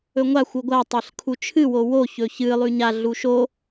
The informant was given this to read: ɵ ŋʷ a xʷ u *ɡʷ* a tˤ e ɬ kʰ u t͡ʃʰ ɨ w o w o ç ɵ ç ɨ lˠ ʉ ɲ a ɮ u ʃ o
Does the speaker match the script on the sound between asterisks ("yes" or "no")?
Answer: yes